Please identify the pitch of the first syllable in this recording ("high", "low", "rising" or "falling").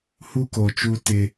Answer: high